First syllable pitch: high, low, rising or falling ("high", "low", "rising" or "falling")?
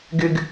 high